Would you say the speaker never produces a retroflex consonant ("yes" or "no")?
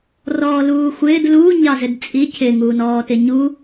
yes